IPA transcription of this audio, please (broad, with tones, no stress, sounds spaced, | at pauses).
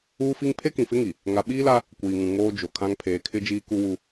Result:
uː˦ f i˦ ŋ pʰ e˦ k ĩ˨ f ɪ˦ ŋ i˨ | ŋ a˨ ɓ iː˦ l a˦ | kʷ iː˨ ŋ ũ˨ ŋ oː˦ d͡ʒ o˨ kʰ ã˦ ŋ pʰ eː˨ kʰ ɪ˦ d͡ʒ iː˦ k u˦ w u˦